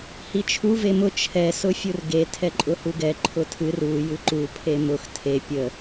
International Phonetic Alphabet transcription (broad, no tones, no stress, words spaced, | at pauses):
hit͡ʃʰu vemʊ t͡ʃʰɛ sʊfʲurɡe tʰɛǃʼʊhuɡɛ ǃʰʊtʰɨr u jɨǃu pʰemʊx tʰe pʲə